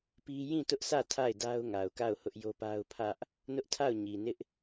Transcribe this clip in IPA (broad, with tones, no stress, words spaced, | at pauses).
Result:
pi˦ jĩ˦˨tʊ˦ʔsä˦˨ tʰa˦˨ɪ̯da˦ʊ̯ ŋa˨ʊ̯ka˦˨ʊ̯ hʊ˦ʔjo˦pa˦ʊ̯ pʰä˦ʔ | nʊ˦ʔtʰa˦˨ʊ̯ ɲi˨nɪ˦ʔ